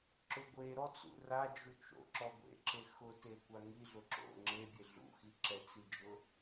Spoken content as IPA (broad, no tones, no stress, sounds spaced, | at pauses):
ǁ ʊ ɡʷ e ɾ ɔ t͡s ṵ r a d͡ʒ u t͡ʃ o̰ ǁ ɔ ɡʷ ḛ ǁ e x ʊ t e kʷ a ŋ i ɮ ʊ ǁ o̰ ŋ͡ǁ e bʲ e ɮ ṵ x i ǁ ɛ t͡s i d͡ʒ ʊ